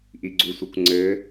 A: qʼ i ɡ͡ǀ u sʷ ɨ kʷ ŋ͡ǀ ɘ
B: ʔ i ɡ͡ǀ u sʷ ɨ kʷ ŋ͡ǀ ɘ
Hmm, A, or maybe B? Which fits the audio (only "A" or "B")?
B